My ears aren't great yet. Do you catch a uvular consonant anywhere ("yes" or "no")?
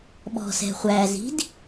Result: yes